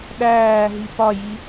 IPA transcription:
ɗ æː ɦ i p ɒ j i

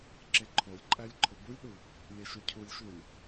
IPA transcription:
ǁ e ǃʰ o lʲ ǃʼ æ lʲ ǃʰ o b u lʲ ɗ u | lʲ e ʃ o cʰ u lʲ ʃ u lʲ

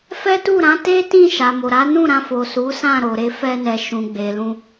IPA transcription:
f ɛ˦ t u˦˨ ɾ ã˨˦ t e˦ t ĩ˦˨ ʃ a˨ m o˨ ɾ a˨˦ n ũ˦˨ ɾ ã˧ f o˨ s u˨˦ s ã˦˨ ɾ o˨ ɾ e˧ f ɛ˧ n ɛ˨ ʃ ũ˨ ɡ͡b e˨ l ũ˧

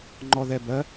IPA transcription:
ŋ͡ǃ ɔ ð ɛ b ɜ

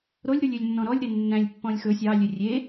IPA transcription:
ɾ o lʲ ɾ u lʲ ø lʲ nː ɔ̃ ɾ ɔ lʲ ɾ e nː æ̃ lʲ pː ɔ̃ lʲ x ɵ sʲ ɑ lʲ ø rʲ e

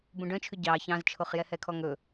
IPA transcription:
b ũ ɖ œ̃ t͡ʃʰ ʉ ɟ ɑ ç ɑ̃ z t͡ʃʰ o χ j ɛ h ɛ kʰ ɔ ŋ ɵ

